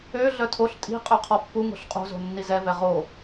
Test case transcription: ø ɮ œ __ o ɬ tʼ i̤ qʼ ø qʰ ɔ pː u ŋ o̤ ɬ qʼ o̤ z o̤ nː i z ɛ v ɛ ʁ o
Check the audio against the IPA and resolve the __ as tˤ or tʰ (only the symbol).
tʰ